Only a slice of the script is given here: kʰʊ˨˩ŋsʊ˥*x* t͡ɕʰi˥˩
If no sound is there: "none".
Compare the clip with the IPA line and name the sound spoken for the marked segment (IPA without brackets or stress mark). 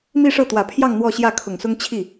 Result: ŋ